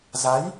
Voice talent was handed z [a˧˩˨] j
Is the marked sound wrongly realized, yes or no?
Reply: yes